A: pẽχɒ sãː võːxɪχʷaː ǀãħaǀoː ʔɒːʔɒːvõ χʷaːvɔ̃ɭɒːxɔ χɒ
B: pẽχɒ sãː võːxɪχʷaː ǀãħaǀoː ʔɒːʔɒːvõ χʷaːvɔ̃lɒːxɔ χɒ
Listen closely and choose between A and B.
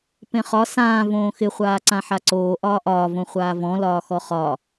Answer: B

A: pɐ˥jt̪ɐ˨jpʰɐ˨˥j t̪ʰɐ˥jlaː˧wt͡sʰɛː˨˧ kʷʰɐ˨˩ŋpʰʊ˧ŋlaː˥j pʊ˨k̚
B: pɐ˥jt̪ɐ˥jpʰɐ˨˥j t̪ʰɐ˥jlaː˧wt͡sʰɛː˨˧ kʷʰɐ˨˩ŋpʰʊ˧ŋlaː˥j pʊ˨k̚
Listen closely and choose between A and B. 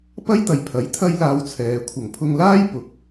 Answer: A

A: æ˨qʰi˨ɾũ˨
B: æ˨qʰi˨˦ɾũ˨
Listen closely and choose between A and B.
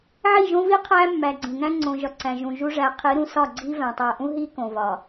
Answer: B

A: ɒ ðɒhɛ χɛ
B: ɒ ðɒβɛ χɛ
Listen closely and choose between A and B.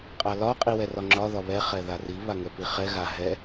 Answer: B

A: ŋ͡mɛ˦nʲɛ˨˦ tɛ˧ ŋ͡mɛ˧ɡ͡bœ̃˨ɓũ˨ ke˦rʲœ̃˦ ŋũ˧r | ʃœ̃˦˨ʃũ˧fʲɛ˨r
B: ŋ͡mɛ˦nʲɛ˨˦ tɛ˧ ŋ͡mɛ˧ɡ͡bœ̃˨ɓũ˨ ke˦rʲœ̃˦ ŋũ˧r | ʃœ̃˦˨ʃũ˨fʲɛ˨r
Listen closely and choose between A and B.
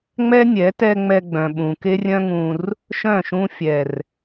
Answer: A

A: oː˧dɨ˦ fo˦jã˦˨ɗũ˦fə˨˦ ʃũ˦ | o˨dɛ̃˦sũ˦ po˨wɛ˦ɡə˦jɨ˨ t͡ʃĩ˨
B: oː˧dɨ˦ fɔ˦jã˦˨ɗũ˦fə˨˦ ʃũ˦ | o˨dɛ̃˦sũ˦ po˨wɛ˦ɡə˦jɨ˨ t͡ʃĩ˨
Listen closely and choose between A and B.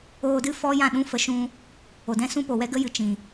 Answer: B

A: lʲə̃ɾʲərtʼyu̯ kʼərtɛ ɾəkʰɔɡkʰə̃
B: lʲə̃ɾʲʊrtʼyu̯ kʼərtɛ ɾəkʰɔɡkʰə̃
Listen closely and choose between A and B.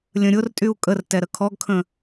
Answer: B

